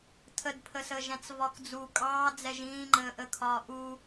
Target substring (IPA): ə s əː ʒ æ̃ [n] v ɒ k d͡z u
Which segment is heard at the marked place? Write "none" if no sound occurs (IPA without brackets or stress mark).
t͡s